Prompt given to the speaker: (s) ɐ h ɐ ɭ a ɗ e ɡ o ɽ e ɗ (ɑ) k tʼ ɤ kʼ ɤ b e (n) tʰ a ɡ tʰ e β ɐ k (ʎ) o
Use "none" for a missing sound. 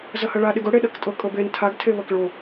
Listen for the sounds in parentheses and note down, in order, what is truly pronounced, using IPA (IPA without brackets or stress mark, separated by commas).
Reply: z, ɐ, n, ɭ